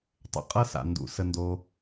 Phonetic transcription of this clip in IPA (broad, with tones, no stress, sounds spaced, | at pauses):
tˤ ə̰˨ qʼ ɤ˦ s a̰˨ n d ṵ˨ s ə˧ n d o˧